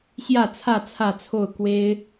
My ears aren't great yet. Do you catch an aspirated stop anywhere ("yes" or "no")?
yes